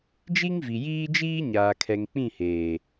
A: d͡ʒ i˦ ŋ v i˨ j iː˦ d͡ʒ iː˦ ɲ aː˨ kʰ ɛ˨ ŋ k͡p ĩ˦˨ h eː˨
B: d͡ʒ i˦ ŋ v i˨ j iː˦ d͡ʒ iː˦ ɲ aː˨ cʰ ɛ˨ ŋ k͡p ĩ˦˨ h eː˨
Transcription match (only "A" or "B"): A